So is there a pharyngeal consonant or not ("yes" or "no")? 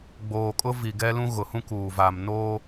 no